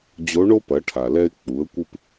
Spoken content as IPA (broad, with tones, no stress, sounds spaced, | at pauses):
d͡ʑ o˧˥ ɳ o˥ p ɐ˩˧ ʈʰ a˩ l ɛ˧ ɪ̯ k͡p u˩˧ ə̯ kʷ ɨ˧ p